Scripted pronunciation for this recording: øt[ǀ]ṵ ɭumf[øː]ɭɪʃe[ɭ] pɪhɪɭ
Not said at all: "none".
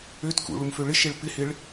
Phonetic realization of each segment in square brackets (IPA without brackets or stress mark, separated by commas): k, ø, ɭ